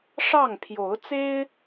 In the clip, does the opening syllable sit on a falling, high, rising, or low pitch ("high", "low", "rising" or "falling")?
falling